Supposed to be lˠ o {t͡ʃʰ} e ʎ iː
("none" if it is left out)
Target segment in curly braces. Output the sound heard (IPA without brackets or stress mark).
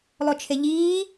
t͡ʃʰ